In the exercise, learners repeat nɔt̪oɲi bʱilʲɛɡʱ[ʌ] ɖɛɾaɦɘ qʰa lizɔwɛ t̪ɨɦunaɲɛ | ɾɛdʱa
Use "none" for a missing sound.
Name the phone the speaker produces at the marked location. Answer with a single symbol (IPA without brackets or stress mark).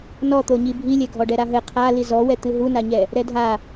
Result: ɔ